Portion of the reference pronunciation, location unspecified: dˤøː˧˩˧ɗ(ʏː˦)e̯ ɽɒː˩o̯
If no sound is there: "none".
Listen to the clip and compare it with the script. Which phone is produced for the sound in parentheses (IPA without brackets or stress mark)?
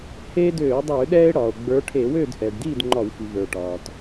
ɛː˦